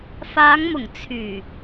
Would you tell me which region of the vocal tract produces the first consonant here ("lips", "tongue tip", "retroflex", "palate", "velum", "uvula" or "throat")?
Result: lips